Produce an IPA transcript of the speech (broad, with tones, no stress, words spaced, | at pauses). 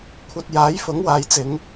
kʷʰɐ˧t̚jaː˨˥j fʊ˨˥ŋwaː˨jt͡sɪ˨˧ŋ